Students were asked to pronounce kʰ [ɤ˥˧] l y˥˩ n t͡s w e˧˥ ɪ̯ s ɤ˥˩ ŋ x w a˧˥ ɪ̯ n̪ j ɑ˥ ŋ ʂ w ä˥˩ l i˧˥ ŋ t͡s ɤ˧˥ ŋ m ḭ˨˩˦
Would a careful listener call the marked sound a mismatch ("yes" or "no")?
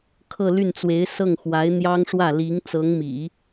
no